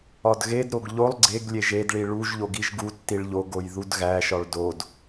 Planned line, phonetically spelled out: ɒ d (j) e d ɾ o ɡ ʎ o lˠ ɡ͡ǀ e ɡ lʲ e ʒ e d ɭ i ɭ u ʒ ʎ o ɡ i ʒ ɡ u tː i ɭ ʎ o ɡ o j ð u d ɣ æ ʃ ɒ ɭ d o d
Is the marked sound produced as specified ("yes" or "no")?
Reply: no